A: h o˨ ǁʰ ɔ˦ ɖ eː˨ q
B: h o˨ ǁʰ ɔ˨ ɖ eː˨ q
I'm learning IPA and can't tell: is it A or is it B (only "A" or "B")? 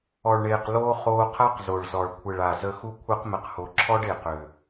A